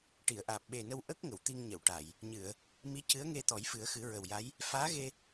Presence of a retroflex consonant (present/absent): present